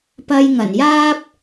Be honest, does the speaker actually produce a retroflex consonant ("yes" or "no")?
no